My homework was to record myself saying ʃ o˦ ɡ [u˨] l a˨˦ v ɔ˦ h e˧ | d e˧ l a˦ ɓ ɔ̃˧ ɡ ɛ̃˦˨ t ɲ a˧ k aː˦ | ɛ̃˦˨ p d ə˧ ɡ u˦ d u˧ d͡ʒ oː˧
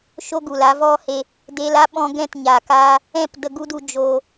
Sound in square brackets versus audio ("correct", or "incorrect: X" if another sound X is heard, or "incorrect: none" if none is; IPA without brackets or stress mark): correct